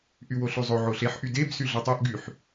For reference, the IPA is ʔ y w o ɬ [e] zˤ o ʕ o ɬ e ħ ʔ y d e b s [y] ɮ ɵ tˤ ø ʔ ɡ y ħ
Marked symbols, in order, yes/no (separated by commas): no, yes